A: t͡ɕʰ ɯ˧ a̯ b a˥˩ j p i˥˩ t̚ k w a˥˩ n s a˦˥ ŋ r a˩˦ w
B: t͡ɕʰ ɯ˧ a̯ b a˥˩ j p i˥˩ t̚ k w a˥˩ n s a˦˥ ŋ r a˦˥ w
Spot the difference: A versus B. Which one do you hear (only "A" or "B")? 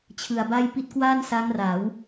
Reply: A